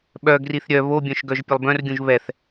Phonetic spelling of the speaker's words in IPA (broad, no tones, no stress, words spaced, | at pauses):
ɓœ ɡriθɾʲœ βobʲœ̃ʃɡœʒ pʲəlˠbœ̃rɡʲũʒ βɛθ